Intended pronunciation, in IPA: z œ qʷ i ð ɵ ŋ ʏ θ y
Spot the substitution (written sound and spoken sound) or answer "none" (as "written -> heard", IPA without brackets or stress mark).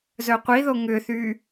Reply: ɵ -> o